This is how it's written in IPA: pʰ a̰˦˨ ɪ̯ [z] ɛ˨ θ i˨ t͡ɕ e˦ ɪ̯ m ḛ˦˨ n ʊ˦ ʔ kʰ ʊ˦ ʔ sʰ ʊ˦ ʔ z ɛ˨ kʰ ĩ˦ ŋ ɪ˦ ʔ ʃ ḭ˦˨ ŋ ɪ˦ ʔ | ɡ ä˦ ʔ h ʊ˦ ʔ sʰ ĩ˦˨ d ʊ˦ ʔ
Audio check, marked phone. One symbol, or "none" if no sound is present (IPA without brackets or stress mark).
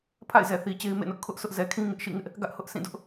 z